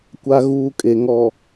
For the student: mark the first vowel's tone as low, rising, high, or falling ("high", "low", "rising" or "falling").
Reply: high